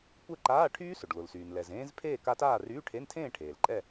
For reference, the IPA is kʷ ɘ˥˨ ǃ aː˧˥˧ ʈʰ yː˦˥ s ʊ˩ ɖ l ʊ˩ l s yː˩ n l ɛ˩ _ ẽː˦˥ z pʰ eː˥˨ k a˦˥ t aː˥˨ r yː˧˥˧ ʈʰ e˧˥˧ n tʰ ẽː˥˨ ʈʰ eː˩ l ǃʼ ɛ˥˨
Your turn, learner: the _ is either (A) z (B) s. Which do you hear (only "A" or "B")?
A